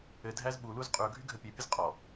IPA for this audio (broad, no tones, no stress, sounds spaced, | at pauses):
ɘ dʱ æ z ɓ u l u z qʼ y ʊ̯ ɡʱ y ɡʱ ə pʲ e pʲ ə z qʼ ɔ